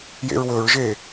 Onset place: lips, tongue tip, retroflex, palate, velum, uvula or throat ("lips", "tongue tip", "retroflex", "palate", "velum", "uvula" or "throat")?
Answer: palate